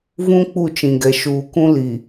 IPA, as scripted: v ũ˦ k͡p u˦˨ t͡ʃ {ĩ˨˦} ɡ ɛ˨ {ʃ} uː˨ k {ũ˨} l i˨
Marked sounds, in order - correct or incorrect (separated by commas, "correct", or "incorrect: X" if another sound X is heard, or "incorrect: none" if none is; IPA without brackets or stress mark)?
incorrect: ĩ˨, correct, incorrect: ũ˦